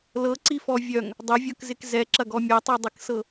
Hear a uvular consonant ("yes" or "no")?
no